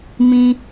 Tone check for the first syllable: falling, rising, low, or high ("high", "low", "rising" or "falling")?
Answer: high